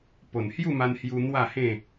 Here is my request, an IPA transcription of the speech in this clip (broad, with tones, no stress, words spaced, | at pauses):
po˨˩nhju˥˧ma˧nhju˧ n̪wa˥˧hẽ˥˧